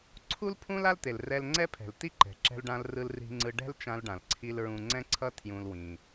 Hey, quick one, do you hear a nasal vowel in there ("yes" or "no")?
yes